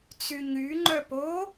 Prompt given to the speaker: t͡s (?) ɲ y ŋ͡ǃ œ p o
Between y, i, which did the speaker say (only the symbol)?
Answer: y